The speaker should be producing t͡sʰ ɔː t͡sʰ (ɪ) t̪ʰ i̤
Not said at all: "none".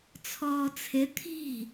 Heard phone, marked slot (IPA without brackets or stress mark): ɪ